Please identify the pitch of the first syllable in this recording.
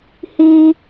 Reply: high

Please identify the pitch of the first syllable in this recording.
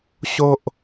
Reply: high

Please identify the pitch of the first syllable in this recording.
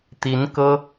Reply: rising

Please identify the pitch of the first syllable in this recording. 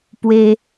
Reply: high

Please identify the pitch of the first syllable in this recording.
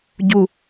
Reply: low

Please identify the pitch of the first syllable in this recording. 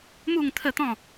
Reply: falling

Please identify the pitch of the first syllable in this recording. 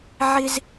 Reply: high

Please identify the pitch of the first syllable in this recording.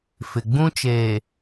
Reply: low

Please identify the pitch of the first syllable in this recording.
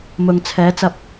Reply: low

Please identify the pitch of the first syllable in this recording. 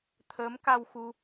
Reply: rising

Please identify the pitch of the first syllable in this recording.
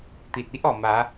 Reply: low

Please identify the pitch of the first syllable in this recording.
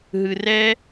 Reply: low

